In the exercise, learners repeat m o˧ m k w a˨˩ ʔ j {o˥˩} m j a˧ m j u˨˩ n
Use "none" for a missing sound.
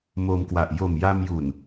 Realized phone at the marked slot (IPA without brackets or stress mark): o˨˩